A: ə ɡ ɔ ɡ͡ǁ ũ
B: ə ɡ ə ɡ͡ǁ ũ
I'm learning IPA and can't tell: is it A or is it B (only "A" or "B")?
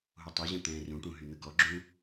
A